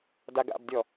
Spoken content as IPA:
daɡa̰bdʲɔ

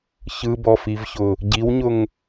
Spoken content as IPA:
çɯbɔfivçʊ | ɟiwɲʊŋ

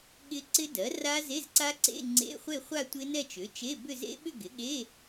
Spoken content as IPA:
ɠɪ˦˥ ǀɪ˦˥dɜ˩˥ ra˦˥ze˧˥˧zǀa˦˥ǀḛ˧˥˧ ŋ͡ǀḛ˧˥˧χʷe˥˧χʷa˥˧ tʷɪ˦˥nɛ˥˧t͡ʃʏ˩˥ t͡ʃe˧˥˧bʏ˥˧ zḛ˦˥ɓʏ˥˧ ɡɪ˩˥ɠe˧˥˧

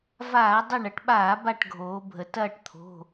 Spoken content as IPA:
vaː˧˩˧ dˤɐ˦˨ɳ ɐ˩˧ʈɓaː˧˩˧ ba˦˨ʈɡʱoː˩˧bʱə˩˧ tɐː˦˨ʈt̪ʰo̤˩˧˩

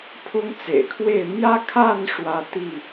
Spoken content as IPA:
pʰʊ˦ŋt͡sḛ˨˩ɪ̯kʰwe˥˨ɪ̯ mjä˦kʰa˥˨n ʂwä˦t̪i˥˨

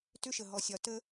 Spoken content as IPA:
tʏ˦ʃə˨ ɦɔ˨sʲɒ˨ tə˧

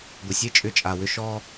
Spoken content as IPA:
ɡʷə˨sʲe˦ t͡ʃʼʏ˦˨t͡ʃʼa˨wʏ˦ ʃɔ˦

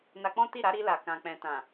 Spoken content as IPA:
na˧k͡pɔ̃˦ ti˦˨ ɾa˨˦ɾi˧la˨kã˨ k͡pɛ̃˨tã˨

